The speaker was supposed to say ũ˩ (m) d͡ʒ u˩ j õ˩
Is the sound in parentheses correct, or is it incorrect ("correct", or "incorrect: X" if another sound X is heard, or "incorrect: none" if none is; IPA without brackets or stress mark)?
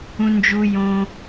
incorrect: n